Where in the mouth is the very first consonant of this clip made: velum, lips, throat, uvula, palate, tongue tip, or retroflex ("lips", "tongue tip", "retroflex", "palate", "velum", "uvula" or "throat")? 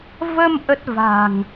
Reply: lips